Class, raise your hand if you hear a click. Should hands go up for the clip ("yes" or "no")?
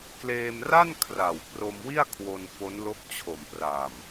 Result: no